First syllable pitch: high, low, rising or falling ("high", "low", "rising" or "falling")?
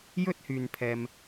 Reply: high